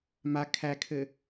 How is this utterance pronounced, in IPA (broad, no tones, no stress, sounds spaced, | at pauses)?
m a kʰ æ kʰ ɘ